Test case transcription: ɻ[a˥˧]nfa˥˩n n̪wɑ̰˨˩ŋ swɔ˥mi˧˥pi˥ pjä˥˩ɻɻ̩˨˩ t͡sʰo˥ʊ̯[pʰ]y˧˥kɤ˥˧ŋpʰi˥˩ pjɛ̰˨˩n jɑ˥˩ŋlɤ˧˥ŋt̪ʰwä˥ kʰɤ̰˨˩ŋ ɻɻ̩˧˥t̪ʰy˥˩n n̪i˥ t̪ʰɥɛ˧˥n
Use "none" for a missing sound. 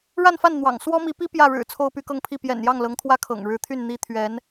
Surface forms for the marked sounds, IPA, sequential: a˥˧, p

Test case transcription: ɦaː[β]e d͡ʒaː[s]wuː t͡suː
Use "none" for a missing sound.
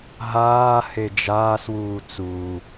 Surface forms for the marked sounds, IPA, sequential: h, s

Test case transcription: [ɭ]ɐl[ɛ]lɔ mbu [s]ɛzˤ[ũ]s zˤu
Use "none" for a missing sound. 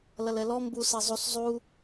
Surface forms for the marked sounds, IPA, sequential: l, ɛ, s, u

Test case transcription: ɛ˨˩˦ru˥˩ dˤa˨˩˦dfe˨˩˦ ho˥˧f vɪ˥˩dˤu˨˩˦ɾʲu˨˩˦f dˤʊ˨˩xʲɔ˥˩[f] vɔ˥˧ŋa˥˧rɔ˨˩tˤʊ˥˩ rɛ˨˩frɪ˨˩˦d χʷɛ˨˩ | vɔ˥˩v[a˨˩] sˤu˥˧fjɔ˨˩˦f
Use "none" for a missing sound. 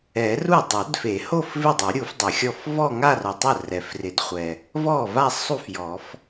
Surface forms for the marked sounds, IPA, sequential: f, a˥˧

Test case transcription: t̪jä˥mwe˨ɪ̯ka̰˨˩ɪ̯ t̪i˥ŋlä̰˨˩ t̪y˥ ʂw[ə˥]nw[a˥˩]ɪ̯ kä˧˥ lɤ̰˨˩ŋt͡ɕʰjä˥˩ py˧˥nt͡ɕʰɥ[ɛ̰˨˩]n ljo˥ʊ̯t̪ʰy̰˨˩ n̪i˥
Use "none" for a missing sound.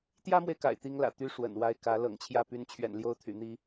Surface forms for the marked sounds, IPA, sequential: ə̰˨˩, a˥˩, ɛ̰˨˩

